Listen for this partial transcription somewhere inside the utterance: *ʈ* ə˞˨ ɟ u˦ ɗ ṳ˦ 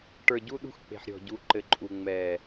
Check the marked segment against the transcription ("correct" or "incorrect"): correct